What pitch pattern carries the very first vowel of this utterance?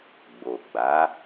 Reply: low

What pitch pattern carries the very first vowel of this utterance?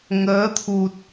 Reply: rising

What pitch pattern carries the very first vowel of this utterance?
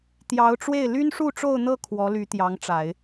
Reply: rising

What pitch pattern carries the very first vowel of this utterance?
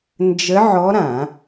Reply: rising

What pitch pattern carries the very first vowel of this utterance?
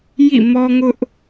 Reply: falling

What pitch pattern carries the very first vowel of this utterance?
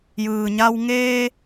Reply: low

